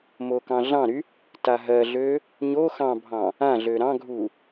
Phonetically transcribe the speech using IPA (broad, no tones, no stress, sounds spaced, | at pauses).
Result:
m o k ɑ̃ ɮ ɑ̃ ɾ y | t a ɦ ɜ ɮ ø | ɲ o x ɑ̃ bʱ ɑ̃ | ã ɮ ø ɾ ɑ̃ ɡʱ u